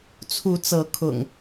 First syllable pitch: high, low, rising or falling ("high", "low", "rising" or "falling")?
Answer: rising